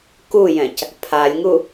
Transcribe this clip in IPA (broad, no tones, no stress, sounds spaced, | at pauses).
k u j ɛ̃ c | pʰ a lʲ ŋ u